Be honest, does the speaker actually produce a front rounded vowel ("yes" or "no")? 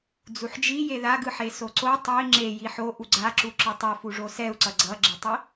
no